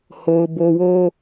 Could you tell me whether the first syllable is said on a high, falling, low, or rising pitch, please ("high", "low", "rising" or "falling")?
low